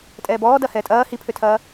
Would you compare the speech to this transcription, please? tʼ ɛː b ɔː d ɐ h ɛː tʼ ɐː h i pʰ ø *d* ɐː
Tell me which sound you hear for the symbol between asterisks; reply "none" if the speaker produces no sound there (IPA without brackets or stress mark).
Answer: tʰ